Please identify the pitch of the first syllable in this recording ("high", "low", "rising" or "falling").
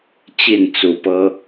falling